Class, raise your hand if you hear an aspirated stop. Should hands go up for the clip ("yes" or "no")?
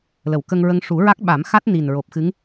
no